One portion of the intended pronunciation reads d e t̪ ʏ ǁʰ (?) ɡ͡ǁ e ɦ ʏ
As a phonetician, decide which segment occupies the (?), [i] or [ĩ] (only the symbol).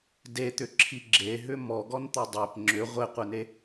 i